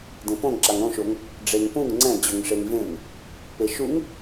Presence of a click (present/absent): present